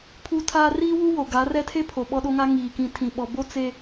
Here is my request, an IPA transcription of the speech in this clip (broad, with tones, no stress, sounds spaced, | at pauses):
pʰ u˦ tʰ aː˦ r iː˦ w u˦ w o˨ ɡ a˨˦ r ɛ˦ tʰ e˦ pʰ o˨ ɓ ɔ˦ ɗ o˦ ŋ a˦ ŋ iː˨ k ĩ˨ tʰ ĩ˨ ɓ ɔ˨ b o˦ t͡s e˦